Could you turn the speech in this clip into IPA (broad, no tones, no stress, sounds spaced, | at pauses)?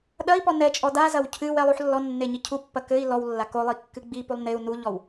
ɗ ɐ i̯ p ɔ n ɛ t͡ʃʼ ɔ d a z ɐ w cʰ ɨ w ɛ lˠ u ħ lː ɔ nː e ɲ i cʰ u pː ɐ k ɘ i̯ l ɔ w lː a k o lˠ i kː ɨ ɡ͡b i p u lˠ n e u̯ n u ʎ ɔ w